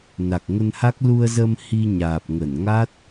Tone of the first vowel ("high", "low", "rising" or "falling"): low